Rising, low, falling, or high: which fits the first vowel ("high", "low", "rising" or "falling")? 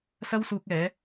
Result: high